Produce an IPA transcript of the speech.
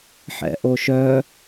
ħ ɛ̰ ʔ o ʃ œ

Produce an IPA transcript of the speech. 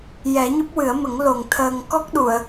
j ɛ˨˩˦ ɲ ɨ˦˥ p̚ w ɨ˨˩˦ ə̯ m ə˨˩˦ ŋ l o˨˩ ŋ t̪ʰ əː˨˩ ŋ k ɔ˦˥ k̚ ɗ u˨˩˨ ə̯

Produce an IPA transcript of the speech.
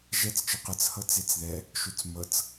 ʒ ɛ t͡s t͡ʃ ɯ q ɯ t͡s h ɤ t͡s e t͡s ð ɛ | ʃ u t͡s m ɤ t͡s

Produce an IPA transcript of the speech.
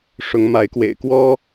ʂ ʊ˨˦ ŋ m a˨˦ ɪ̯ k w ḛ˨˩ ɪ̯ k w ɔ˦

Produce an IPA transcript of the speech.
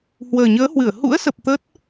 h w əː˨˩ ɲ əː˨˦ h w ɨ˧˩ ə̯ h ṵ˧˥ ə̯ s ə˨˩ p̚ t̪ ə˦˥ t̚

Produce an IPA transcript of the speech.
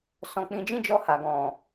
s ɔ̃˧ k͡p ĩ˧ d͡ʒ ĩ˦ d͡ʒ ɔ˧ h a˨ ɡ ɔ̃˨

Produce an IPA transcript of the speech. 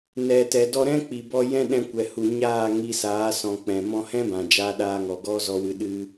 n ɛ˨ t ɛ˨ d ɔ˧ ɾ ɛ̃˦ k͡p i˨ b ɔ˧ j ɛ̃˦ ɗ ɛ̃˧ kʷ ɛ˨ h u˨ ɲ aː˦˨ ŋ i˧ s aː˨˦ s ɔ̃˨ k͡p ɛ̃˨ m ɔ̃˧ h ɛ̃˦ b ã˨ d͡ʒ aː˧ ɗ aː˧ ŋ ɔ˨ ɡ ɔ˦ z ɔ˧ w ɨ˧ ɗ ɨ˦

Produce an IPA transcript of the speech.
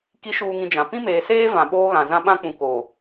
k i˨˦ ʃ uː˨ ŋ ĩ˨ d͡ʒ ã˨ p ĩ˦ m eː˨ s eː˦ v ã˨ ɓ oː˦ ɣ ã˨ z ã˦ ɓ ã˦ k͡p ũ˨ k oː˨

